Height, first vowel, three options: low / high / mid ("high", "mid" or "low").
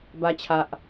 low